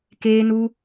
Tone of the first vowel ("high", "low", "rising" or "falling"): high